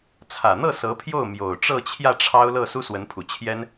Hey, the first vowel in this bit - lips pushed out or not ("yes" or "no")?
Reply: no